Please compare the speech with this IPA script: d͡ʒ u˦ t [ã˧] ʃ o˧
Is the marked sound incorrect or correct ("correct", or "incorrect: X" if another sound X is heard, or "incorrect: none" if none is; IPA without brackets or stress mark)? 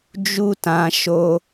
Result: correct